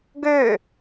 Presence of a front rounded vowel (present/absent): present